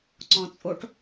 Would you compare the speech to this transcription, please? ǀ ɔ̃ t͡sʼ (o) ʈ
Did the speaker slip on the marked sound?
no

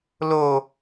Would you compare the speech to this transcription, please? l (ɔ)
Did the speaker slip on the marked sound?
yes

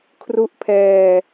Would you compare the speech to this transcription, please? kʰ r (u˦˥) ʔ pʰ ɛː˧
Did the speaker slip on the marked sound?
no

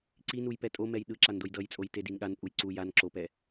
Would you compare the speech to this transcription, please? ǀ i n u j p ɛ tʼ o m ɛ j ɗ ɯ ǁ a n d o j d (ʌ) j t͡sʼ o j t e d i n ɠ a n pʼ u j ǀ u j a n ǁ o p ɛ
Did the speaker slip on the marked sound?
no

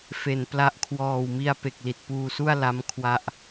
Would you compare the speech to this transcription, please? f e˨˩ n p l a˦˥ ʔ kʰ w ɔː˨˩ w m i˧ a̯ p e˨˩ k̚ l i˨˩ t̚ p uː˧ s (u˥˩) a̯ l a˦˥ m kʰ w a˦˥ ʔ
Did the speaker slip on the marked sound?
no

